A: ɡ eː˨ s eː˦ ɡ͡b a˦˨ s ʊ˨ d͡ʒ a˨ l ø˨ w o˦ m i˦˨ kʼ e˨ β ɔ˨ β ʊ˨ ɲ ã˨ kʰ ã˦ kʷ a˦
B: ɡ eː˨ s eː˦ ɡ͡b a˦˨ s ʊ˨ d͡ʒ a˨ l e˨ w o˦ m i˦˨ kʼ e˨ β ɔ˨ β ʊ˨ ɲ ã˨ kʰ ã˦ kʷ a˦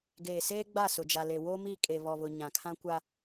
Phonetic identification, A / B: B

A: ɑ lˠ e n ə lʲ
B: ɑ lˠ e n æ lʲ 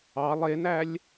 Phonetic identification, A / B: B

